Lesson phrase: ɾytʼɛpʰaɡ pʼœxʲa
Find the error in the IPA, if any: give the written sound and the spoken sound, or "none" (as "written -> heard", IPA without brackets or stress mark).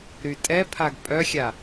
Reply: none